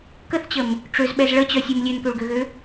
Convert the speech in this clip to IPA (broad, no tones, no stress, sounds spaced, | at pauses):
k ə θ t͡ɕ ə m | ʈ͡ʂ ø z ɓ ɛ z ɭ ə t͡ɕ œ sʲ u m lʲ ø n k ø ɭ ɡ ø ɣ ø